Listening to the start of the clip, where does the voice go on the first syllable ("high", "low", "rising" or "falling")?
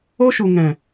high